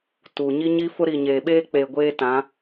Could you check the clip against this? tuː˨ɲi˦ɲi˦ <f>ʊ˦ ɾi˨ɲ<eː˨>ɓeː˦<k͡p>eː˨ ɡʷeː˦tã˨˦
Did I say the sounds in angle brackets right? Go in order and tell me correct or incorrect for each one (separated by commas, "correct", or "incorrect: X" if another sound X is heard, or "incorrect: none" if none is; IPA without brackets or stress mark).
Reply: correct, correct, correct